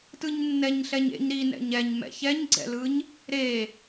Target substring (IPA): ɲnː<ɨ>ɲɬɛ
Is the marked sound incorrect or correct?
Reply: incorrect: ɛ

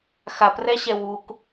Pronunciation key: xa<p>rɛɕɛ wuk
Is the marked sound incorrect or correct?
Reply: correct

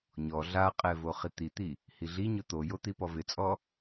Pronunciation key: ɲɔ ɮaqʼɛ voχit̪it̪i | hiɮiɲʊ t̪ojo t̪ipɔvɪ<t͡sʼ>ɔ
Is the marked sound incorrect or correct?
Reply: correct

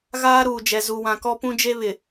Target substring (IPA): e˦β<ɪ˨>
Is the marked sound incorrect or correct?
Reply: correct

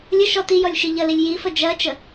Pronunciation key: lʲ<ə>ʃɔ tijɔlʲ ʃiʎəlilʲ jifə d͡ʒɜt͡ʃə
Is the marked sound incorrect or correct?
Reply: correct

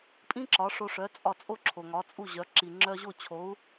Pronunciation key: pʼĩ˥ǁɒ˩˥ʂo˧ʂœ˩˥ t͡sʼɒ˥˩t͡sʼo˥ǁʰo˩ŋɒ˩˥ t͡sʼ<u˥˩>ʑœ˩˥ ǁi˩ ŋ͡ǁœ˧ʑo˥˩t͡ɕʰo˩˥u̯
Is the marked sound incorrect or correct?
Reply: correct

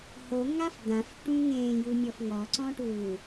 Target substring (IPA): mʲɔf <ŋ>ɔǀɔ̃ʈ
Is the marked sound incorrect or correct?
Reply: correct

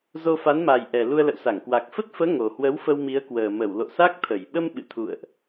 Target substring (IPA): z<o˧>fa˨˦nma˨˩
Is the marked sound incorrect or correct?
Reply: correct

